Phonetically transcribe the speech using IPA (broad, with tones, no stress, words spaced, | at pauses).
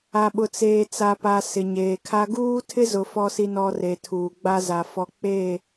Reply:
a˨ ɓʊ˨t͡seː˨t͡sa˨pa˨ sɪ˨ɲeː˨kʰa˦ ɡuː˦tʰɪ˦zʊ˨ fɔ˨si˨nɔ˨ re˨tʰuː˨ɡ͡ba˦ za˨ fɔ˨ k͡pe˦˨